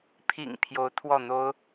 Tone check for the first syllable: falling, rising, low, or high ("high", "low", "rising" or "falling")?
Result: low